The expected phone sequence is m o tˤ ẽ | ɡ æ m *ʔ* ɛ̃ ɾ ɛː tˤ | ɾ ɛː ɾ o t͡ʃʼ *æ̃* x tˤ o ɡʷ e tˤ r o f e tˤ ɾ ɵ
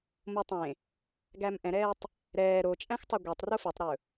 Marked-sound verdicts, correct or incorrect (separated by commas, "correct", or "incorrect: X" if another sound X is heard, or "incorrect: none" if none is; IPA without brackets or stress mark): correct, correct